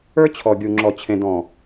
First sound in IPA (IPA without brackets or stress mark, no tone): ə˞